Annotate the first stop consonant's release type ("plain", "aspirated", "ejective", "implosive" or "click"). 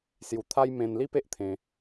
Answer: aspirated